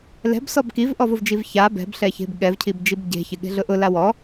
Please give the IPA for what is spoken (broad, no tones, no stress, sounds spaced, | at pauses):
l ɛ̤ b s ɔ b k i v ʔ ɔ v ʊ v d͡ʒ i v ç a b ɛ̤ b ɬ ɛ ç e̤ b ɠ ɛ v cʰ i b d͡ʒ i b ɟ e̤ ç ɪ ɠ e̤ ɮ ʊ ʔ ʊ l a w ɔ